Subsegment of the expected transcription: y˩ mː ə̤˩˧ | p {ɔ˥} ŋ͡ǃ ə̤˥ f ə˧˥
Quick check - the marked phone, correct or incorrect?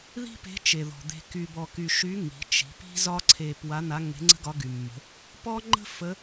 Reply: correct